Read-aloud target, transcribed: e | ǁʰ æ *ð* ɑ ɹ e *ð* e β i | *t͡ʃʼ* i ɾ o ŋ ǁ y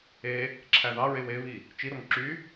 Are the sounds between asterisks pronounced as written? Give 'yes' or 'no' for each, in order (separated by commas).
yes, no, no